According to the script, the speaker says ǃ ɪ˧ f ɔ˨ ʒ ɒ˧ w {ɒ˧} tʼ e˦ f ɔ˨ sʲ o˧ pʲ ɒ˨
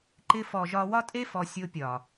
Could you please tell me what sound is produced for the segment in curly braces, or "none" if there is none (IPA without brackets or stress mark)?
ɒ˦